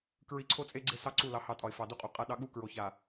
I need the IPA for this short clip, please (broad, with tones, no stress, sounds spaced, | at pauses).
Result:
k ɹ i˨ ǀʰ o˦ t͡sʼ e˦ ɡ͡ǀ e˦ s ɑ˦ ǀ u˦˨ l ɑ˨ h ɑ˨ tʼ ɒ˨ ɪ̯ f ɑ˨ d u˦ qʼ u˨ qʼ a˦ ɗ ɑ˦ ɠ u˦ k ɹ o˨ ç a˨